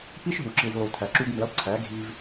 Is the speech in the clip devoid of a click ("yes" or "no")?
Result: no